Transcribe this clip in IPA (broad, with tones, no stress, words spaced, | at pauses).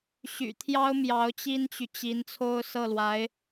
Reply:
ɕy̰˨˩t̪ʰjɑ˥ʊ̯ mjɑ˧˥ʊ̯t͡ɕi˥nt͡ɕy˨t͡ɕi˧˥n t͡sʰo˥ʊ̯ sɤ˥˩lwa˧˥ɪ̯